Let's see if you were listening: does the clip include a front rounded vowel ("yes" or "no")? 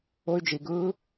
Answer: yes